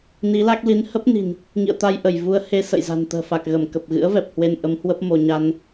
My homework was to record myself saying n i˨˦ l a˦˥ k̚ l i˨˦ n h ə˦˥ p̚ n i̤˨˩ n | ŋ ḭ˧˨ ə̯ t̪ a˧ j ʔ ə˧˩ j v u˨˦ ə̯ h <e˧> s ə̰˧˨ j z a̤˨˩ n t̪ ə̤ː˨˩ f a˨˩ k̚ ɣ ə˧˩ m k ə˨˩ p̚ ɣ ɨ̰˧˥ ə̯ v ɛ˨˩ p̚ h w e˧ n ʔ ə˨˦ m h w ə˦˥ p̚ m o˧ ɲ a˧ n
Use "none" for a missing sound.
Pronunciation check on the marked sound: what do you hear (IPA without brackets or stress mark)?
e˧